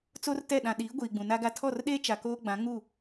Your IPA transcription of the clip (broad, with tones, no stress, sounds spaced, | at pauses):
t͡s o˦ r t ɛ˦˨ ɗ ã˨ ɗ iː˨˦ ɡʷ iː˨ ɡ͡b ũ˨ n a˦ ɡ a˦ tʰ ɔ˦˨ r ɗ eː˦ t͡ʃ a˨ k oː˦ ɡ͡b ã˨˦ ŋ u˦˨